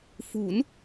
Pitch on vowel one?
rising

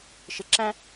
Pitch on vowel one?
low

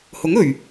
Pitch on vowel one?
rising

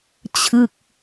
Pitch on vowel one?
falling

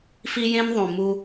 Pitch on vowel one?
high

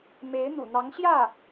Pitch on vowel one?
rising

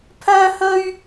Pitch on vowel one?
high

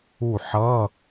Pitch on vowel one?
falling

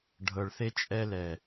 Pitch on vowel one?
low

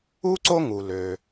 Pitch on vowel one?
high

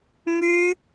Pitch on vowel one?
high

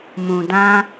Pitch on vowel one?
low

